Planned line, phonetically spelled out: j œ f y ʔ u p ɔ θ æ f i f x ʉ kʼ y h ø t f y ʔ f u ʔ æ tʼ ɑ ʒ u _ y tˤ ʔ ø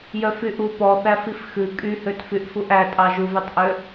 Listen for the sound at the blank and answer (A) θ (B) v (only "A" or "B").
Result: B